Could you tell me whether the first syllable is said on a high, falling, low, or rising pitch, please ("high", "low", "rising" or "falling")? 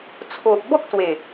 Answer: low